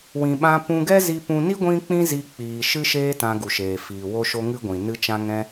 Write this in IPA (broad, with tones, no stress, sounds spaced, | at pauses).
w ĩ˨ ɓ ã˧ p ũ˧ ɡ ɛ˦ z i˧ p ũ˧ n i˦ ɡʷ ĩ˦ k͡p ĩ˦ z i˧ k͡p iː˨ ʃ ɨ˦ ʃ eː˦ t ã˧ ɡ u˨ ʃ eː˨ f iː˨ w o˦ ʃ o˦ ŋ ɨ˦ ɡʷ ĩ˨ n ɨ˧ t͡ʃ ã˧ ŋ ɛ̃˧